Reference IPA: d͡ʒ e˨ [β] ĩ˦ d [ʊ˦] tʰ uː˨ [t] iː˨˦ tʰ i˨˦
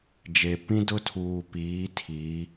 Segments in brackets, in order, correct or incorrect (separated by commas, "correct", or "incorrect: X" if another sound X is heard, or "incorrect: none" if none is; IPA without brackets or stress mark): incorrect: p, correct, incorrect: p